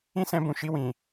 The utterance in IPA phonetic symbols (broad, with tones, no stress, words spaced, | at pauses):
ĩ˦sɛ̃˧bũ˨ʃi˧ wĩ˨